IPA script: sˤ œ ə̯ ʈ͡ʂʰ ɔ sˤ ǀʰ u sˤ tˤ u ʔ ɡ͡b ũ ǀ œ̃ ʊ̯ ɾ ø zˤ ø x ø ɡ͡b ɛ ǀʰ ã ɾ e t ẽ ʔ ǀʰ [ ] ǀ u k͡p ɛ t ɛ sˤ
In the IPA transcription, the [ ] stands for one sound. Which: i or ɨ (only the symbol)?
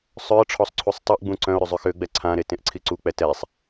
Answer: i